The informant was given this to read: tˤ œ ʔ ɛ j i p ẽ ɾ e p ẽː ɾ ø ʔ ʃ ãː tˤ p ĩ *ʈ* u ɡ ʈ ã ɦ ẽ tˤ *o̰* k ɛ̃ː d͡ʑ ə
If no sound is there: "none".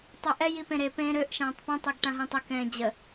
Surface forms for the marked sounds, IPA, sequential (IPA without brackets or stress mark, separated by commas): tˤ, o